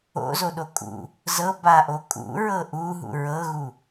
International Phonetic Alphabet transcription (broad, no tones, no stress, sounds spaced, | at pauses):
o̰ z o ɗ o kʼ ṵ | z ɤ b a ʔ o kʼ ṵ ɹ ɤ ʔ u ɦ ṵ ɹ ɤ ɣ u